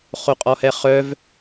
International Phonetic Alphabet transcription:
χoqʼɔhɛχœv

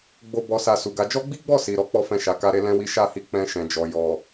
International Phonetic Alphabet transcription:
ɡ͡bo˧ bɔ˨sa˨ su˨ɡa˨˦ d͡ʒɔ˦ɡ͡bi˦ɡ͡bɔ˦˨ si˨ ɾɔ˨˦k͡pɔ˦ fɛ̃˦˨ʃa˨˦ka˦ɾe˦ lɛ̃˦wi˦ ʃa˦˨hi˧ k͡pɛ̃˧ʃɛ̃˨d͡ʒɔ˨ jɔ˨

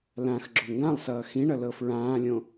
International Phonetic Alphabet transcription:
lãx ɡ͡ǁoŋɡãlˠsʌː xĩɳʌ lɤfɹãːlʲõ

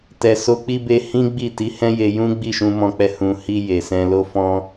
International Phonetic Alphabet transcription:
tɛ˨so˧k͡pi˦ be˧ hĩ˦ɡ͡bi˦˨ti˨˦ hɛ̃˦je˧jũ˦ ɡ͡bi˦˨ʃũ˧mɔ̃˧k͡pɛ˧ hũ˨hi˧ je˨sɛ̃˧ lo˦fɔ̃˦

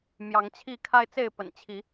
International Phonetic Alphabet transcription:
mjɑ˨˦ŋt͡ɕʰi˥˨ kʰa˦ɪ̯t͡se˥˨ɪ̯pə̰˨˩nt͡ɕʰi˨˦

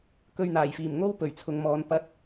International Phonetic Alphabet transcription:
kɵ˧ɥn̪aː˨˩jfiː˨˩mŋo˥w pɵ˨˩ɥt͡sʰʊ˨ŋmɔː˨˧n pɐ˧t̚

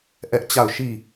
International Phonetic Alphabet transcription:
ʔɛ˦ʔt͡ɕa˦˨ʊ̯ ʃi˦˨

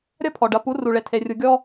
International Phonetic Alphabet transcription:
ɾʲɐ˦pʰɔ˨ɖɐ˨˦pu˨˦ ru˨ɭe˨tʰe˨ rʲu˨ɡʲɔ˦

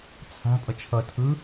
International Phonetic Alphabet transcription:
t͡sʰa̤ pʼʌt͡ʃʰʌ tʰɯ

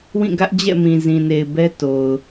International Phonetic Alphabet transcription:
wĩ˦˨ɡä˦ʔd͡ʑɛ̰˦˨mĩ˨ zĩ˨ne˨ɪ̯ bɛ˦to˨ʊ̯

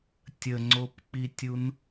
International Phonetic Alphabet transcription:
tʲəŋ͡ǀopk͡pitʲun

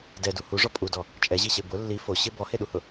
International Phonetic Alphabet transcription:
dɛdu huʐɔ pʼudɔ | t͡ʃʼɛʑiɕe bʊ lːi fo ɕɪ bɔheɗuhʊ

